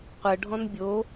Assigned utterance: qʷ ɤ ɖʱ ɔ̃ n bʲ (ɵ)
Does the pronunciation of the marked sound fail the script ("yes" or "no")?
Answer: yes